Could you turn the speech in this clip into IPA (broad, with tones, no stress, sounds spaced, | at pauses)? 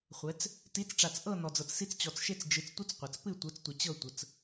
χʷ ɛ˩˧ t͡s | t i˩˧ t͡s ʈ͡ʂ a˩ t͡s ʔ ɤ˥˨ n ɔ˩ d͡z ɤ˩ t͡s s i˧ t͡s t͡ɕ ɔ˩ t͡s ʃ e˧ t͡s d͡ʒ ɨ˩˧ t͡s tʷ ɨ˦˥ t͡s qʷ ɤ˩ t͡s p ɨ˥˨ tʷ ɤ˩˧ t͡s tʷ ə˩ t͡ɕ ɤ˥˨ tʷ ə˩˧ t͡s